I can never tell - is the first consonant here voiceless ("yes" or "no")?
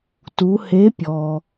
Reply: yes